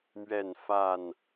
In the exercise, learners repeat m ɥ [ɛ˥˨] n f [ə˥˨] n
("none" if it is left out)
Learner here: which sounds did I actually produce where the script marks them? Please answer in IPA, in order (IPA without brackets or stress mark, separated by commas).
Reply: ɛ˥˨, a˥˨